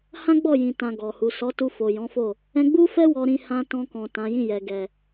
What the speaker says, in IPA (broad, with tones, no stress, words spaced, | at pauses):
hã˦ɡ͡bɔ˦˨jĩ˨ tã˨ ɡɔ˨hu˨ sɔ˨˦tu˧fo˨ jɔ̃˨˦fo˦˨ | ɛ̃˧ɡ͡bu˦fɛ˦ wɔ˧ɾĩ˧ hã˧tɔ̃˧kɔ̃˨ tã˨˦ jĩ˦˨jɛ˨ ɡɛ˨